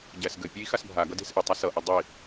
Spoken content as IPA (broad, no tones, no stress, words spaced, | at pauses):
ɟæsɡɘpʲei̯ xasbʱaɡʌ de̤sʔɘtˤæ sʌʔʌ dˤi